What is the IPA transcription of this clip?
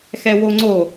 x ɛ w o ŋ͡ǀ o

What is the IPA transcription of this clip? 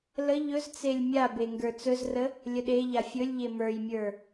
l ə ʎ ɵ z t͡s e lʲ mʲ a b e ŋ ɡ ə˞ t͡s ɵ z r ə | lʲ ə ɗ e ʎ a fʲ ɵ lʲ ʎ e m ə˞ j mʲ ə˞

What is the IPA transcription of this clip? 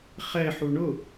χ ɛ ħ u ɳ ʊ

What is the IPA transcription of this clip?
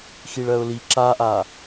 x i ɭ ɜ ʊ̯ l i ǁ a ʔ a

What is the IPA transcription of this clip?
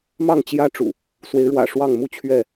m ɑ˥˨ ŋ t͡ɕ j ä˦ ʈ͡ʂ ṵ˨˩ | s w e˨˦ ɪ̯ ɻ w ä̰˨˩ ʂ w ɑ˥˨ ŋ m u˥˨ t͡ɕʰ ɥ ɛ˥˨

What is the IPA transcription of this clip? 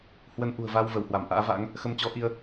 h w ə˧ n ʔ ṳ˨˩ ə̯ v a˧ w v ə˧˩ w h w a˧˩ m ʔ a̰ː˧˥ v a̰˧˥ ŋ | x ə˧ m t͡ɕ ɔ˨˦ ʔ i˧ ə̯

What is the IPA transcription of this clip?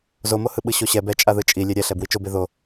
z o m o h ɯ ɓ ɯ ɕ o ɕ ɛ b ɛ t͡ʃʼ a ð ɯ t͡ʃʼ i lʲ e ɾʲ ɛ ɬ ɛ b w i t͡ʃ o b e ð o

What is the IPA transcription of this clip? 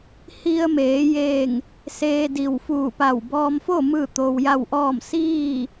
h i˧ ə̯ m eː˩˧ j eː˧˩ ŋ | s eː˧ d i˧˩ w f uː˧˩ p a˧˩ w b ɔː˧ m f o˥˨ m ɯː˥˨ t̪ o˧ w j a˥˨ w ʔ ɔː˥˨ m s iː˥˨

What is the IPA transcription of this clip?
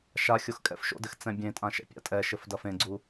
ʃ a xʲ o x kʼ ɛ̰ f ʃ o̰ d ɘ x t͡s ɛ̃ bʲ ẽ tʼ ã ʃ ɛ̰ pʲ a̰ tʼ ɛ ʃ ɘ f d ɐ f ẽ ɡ͡ǀ u

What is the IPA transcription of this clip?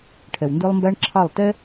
ʈʰ ɛ˨ w n d ə˞˦ lˠ m b æ˦ ɳ ǁʰ ɑ˦˨ lˠ t ɛ˦

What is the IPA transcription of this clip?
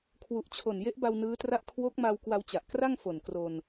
kʰ w u˨˩ ʔ t͡ɕʰ o˨˩ n j e˦˥ ʔ b a˧ w n ɯː˦˥ t r a˥˩ ʔ kʰ w o˦˥ k̚ m a˧ w k w a˧ w t͡ɕ a˨˩ ʔ k r a˥˩ ŋ f o˨˩ n k r o˧ n

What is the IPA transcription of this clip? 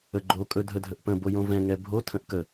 ə ɡ͡ǃ o kʼ ɵ dʱ ə dʱ ə ʔ p ə̃ b o j õ v ɛ̃ ŋ ɛ bʱ o tʰ ə̃ ʔ k ə

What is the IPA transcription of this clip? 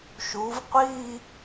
ʃ u˩˧ v qʷ i˥˧

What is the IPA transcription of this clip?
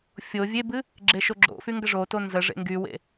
fʲ o vʲ e b ɨ | ɡ͡ǁ e ʃ o ɡ͡ǁ o̰ f y ŋ ɡ ə ʐ o t o n z ə ʐ ḛ ŋ ɡ y w ḛ

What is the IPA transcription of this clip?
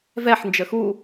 v ɛ ħ n d͡ʒ ə x u

